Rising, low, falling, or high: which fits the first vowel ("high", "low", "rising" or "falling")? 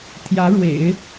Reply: rising